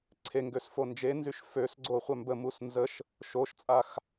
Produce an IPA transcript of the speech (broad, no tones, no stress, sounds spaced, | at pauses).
ǀʰ e ŋ ɡ ø s f o n d͡ʒ e n z y ʃ f ø s ɡ͡ǀ o χʷ œ m b ə m u s n z ə ʃ | ʃ o ʃ t͡sʼ a x